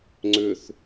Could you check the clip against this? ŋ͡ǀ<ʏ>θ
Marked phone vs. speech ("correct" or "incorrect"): correct